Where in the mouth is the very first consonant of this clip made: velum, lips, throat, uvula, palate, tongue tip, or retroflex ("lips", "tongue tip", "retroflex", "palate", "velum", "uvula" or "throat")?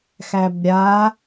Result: velum